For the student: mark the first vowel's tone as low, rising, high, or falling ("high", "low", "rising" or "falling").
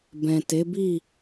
low